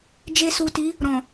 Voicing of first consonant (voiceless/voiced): voiced